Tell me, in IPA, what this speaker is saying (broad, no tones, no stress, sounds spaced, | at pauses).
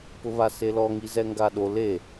p ʊ β a s e l ɔ ŋ i z ɛ ŋ ɡ a ɗ o l e